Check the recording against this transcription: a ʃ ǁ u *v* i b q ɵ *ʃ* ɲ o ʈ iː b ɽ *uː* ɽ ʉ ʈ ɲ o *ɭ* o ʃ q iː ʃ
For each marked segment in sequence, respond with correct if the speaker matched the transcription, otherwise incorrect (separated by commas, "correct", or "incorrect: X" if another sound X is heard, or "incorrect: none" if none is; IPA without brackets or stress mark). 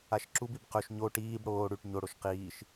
incorrect: b, correct, incorrect: oː, incorrect: ɽ